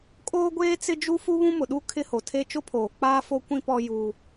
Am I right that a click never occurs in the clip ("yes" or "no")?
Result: yes